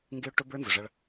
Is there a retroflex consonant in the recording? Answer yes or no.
yes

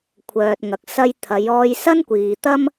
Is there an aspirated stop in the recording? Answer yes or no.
yes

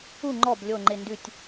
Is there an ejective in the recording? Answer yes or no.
no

